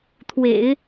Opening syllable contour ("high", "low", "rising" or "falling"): low